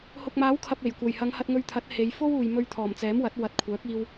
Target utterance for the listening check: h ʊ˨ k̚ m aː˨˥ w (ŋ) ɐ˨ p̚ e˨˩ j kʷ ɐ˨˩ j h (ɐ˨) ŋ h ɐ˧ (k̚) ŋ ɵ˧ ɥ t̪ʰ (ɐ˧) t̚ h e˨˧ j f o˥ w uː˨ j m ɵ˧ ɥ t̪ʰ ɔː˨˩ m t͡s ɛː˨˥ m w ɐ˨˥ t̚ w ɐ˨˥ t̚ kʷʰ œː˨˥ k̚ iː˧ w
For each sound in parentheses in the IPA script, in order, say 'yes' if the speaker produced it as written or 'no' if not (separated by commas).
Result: no, no, no, no